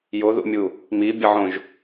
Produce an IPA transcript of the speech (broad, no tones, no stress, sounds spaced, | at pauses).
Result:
j o ð ṵ mʲ u | m i bʲ ʌ ʕ õ ʒ